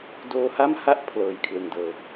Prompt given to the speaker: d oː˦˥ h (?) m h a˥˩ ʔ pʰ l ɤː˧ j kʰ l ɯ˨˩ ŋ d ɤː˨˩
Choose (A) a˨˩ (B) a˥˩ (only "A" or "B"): B